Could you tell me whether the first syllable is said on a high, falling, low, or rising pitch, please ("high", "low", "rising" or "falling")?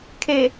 low